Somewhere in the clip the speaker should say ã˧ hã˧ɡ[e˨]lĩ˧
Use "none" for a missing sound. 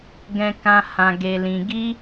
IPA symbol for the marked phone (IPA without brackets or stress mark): e˧